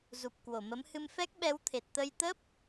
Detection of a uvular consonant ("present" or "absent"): absent